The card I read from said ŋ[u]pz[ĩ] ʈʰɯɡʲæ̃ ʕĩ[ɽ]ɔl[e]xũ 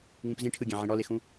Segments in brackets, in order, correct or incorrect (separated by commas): incorrect, correct, correct, correct